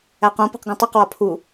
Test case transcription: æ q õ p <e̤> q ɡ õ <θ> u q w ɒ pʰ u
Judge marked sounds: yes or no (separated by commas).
yes, no